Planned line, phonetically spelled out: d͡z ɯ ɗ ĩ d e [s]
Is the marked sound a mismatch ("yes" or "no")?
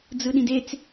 yes